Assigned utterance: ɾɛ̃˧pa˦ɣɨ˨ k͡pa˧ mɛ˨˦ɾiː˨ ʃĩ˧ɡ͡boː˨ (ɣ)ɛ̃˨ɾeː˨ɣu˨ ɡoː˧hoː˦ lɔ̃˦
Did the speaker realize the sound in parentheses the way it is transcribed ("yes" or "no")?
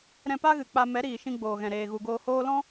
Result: yes